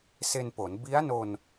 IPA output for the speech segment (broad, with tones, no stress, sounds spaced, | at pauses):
s e˧ n p o˩˦ n b i˦˥ a̯ n o˧ n